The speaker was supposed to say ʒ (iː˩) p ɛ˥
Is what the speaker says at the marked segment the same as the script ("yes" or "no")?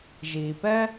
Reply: yes